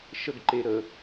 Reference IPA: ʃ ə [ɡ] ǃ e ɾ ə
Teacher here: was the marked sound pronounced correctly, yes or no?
yes